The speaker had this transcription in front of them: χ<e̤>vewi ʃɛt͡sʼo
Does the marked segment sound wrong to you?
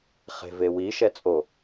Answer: no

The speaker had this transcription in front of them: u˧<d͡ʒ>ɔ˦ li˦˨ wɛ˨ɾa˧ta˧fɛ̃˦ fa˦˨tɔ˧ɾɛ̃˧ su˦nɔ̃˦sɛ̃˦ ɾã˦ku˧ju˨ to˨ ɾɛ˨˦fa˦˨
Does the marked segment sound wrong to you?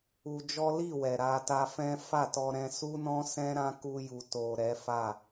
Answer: no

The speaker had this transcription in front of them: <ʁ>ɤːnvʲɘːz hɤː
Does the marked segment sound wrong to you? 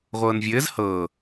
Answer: yes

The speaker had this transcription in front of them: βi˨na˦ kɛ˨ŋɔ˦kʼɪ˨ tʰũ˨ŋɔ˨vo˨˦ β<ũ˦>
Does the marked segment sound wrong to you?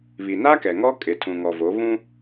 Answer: no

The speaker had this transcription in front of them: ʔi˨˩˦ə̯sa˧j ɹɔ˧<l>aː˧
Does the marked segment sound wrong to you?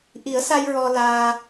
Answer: no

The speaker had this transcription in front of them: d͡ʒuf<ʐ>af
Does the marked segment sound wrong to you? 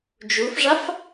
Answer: no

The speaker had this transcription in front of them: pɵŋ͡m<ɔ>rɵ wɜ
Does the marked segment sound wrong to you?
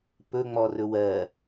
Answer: no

